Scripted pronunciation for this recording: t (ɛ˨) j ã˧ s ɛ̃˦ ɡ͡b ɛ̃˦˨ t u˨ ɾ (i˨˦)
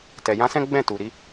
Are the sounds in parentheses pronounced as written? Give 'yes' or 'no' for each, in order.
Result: yes, yes

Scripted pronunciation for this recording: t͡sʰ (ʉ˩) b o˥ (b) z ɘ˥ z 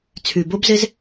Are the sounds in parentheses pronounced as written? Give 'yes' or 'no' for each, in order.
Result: yes, yes

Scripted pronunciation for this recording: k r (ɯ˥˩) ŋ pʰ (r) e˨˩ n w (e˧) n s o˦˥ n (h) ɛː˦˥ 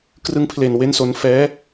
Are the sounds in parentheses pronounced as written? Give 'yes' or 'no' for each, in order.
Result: no, no, no, no

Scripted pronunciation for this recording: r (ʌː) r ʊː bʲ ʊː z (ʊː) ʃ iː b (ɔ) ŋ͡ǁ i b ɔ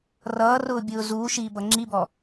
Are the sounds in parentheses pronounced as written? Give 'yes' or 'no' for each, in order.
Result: yes, no, no

